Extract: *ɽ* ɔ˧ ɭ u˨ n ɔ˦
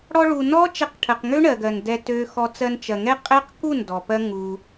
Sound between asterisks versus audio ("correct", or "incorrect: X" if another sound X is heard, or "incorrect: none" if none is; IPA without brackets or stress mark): correct